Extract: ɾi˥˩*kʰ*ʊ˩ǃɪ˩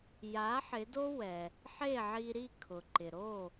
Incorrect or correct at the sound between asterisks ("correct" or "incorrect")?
correct